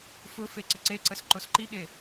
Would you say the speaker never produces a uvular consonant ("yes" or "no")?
yes